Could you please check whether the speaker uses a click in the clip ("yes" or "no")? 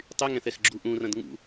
yes